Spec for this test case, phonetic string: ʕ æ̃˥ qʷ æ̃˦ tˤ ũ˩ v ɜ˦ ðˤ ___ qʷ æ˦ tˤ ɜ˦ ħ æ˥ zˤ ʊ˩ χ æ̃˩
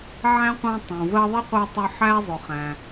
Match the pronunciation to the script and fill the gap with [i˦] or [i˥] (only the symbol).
i˥